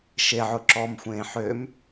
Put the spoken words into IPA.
ʃeʕʊ ǁɔmxʷẽː ħøm

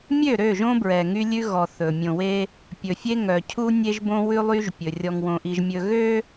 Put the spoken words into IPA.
mʲø˦˨ɾø˦˨ʒõ˦bɹɛ˨ ŋy˦lʲʉ˦ ɣɔ˨ θɵ˨ mʲõ˨we˦ | pʲɵ˨fʲe˦ŋœ˨cʰu˦ nʲe˦ʒbõ˦ wʉ˦lˠy˦ʒpʲɵ˨ rʲɔ˨ŋwõ˨ʔi˨ʒmʲɵ˨ ɣø˦

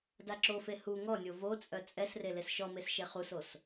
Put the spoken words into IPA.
daǁofe hu ŋɔnʲo vot͡sʼœ t͡sʼɛsre lesʃɔmes ʃeχusos

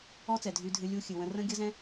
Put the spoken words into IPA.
ɔ˦t͡sɛ˨dʱy˧dʱɨ˧ lʲu˧xʲɨ˨ wə̃˧rə̃˦ ɡʲə˦zɛ̃˦

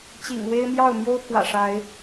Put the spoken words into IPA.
t͡ɕḭ˨˩ŋwe˦ɪ̯ mjɑ˥˨ʊ̯mjo˦ʊ̯pʰwä̰˨˩ ʂa˨˦ɪ̯

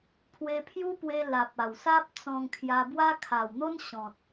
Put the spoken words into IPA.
pʰwe˧pʰju˦pwe˧ la˨p̚a˨˩wsa˦p̚ t͡sɔ̃˧ŋkʰja˧bwa˦ kʰa˨˩wn̪o˦nɕɔ̃˨t̚

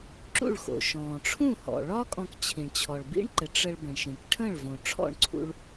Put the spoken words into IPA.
ǁṵ˥˩ɭxo̰˩ ʃɔ̃ː˩ʈ͡ʂʰũ˥˩hɔ̰˩ɭɒ˥ kʼɔ̃˧kt͡ɕʰĩ˩ɳt͡ɕʰɔ˩ɭ bḭ˥ɳǃɘ˩˥ ʈ͡ʂə˧ɭ bə̃˩ɳʃĩ˩k ʈʰə̃ː˥˩ɭvõ˩ʈ͡ʂʰɔ̰˥˩ɳǀʰṵ˧ɭ

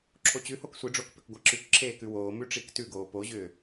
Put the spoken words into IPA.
ǁʰot͡ɕʉhok sʷiɖ͡ʐoːk pʏkɡʷaǁʉkǁʰeː kʉwoːmʉ ʈ͡ʂiktʉɡoː poʑʏː

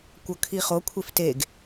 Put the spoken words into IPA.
kʷɤkʰiχo kʷʰefteɡ

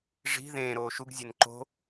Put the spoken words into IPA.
ʐi̤ ðẽː ɾoːʃuɡ zʲenǃo̤

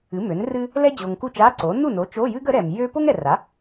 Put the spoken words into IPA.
ɨ˩˥mø˩˥nrɨ˥ | lɛ˥d͡ʑo˨ŋku˥˩t͡ʃ a˧˥˧ ǀo˩˥ nu˥˩no˩˥ t͡ʃo˧˥˧jɨ˥ɡ ə˩˥ ɾɛ˨m jø˥ po˥ŋɛ˨ra˩˥

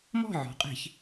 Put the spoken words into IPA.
mɔ̤˥˨ʕɔ̤˩˧qʼe̤˧˩˧ç

